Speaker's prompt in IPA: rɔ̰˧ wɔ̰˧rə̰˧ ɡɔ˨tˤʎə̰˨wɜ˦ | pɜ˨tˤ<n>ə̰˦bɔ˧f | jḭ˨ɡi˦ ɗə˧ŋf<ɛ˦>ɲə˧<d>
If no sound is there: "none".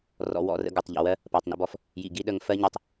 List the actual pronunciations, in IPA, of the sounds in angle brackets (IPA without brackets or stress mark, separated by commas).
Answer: n, ɜ˦, tˤ